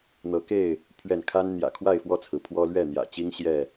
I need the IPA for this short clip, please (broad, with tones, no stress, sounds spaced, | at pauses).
n̪ ɤ˨˦ k e˥˨ ɪ̯ | pʰ ɥ ɛ˥˨ n kʰ a˦ n n̪ j ä̰˨˩ kʰ w a˥˨ ɪ̯ f w ɔ˥˨ t͡sʰ ɹ̩˩ pʰ w ɔ˦ l ɥ ɛ˥˨ n̪ j ä̰˨˩ t͡ɕ i˦ ŋ ɕ j ɛ˥˨